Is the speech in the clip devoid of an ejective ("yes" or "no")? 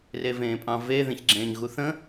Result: no